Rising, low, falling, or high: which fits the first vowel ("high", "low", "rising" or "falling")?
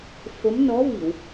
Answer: rising